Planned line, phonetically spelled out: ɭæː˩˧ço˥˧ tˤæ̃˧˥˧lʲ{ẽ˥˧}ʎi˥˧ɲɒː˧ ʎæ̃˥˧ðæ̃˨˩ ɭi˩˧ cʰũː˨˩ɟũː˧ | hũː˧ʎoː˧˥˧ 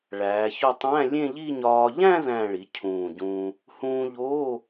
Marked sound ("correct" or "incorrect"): correct